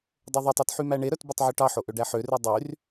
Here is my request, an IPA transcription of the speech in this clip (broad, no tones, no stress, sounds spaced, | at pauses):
dˤ ø ðˤ i tˤ u t ħ y m æ ɳ e ɾ œ t b ɵ tˤ ʕ u ʈ ɑ ħ o ʔ ø ɖ æ ħ ø r ʉ dˤ y r